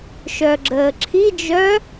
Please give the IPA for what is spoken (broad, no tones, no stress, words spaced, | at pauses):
ʃœɡ͡ǁəːǁʰid͡ʒœː